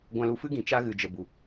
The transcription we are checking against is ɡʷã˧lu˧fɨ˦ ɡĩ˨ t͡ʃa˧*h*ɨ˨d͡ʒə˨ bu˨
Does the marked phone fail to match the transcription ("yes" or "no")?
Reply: yes